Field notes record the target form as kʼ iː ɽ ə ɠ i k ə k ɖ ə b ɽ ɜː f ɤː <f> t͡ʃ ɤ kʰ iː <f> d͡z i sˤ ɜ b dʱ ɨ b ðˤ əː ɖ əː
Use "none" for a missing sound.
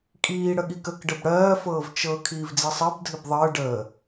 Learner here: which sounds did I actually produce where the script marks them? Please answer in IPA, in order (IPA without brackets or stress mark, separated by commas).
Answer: v, v